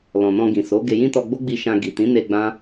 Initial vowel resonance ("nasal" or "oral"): nasal